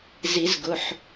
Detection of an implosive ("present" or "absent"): absent